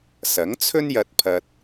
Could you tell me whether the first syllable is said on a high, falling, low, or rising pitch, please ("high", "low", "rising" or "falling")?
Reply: rising